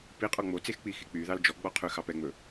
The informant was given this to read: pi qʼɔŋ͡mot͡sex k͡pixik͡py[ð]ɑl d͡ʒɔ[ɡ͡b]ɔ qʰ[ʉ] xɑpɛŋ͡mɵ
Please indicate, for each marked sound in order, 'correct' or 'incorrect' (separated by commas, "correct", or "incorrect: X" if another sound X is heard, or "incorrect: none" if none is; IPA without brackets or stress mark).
correct, correct, correct